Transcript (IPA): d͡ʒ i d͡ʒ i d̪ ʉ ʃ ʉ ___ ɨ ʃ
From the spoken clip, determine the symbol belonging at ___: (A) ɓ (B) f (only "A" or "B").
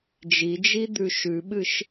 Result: A